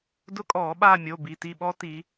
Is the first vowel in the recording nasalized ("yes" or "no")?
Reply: no